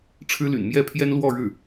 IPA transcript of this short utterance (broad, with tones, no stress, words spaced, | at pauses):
ʈ͡ʂʰɻ̩˥ly̰˨˩n mjɛ˥˩pʰjɛ˥nlwɔ˥˧ ɻɻ̩˥˩